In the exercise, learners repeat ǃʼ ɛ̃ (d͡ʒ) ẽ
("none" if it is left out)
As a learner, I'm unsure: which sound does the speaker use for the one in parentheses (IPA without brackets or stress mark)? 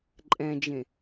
d͡ʒ